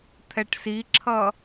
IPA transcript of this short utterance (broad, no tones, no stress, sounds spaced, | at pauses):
t̪ʰ ɛ ʈ s i ǁʰ ʌ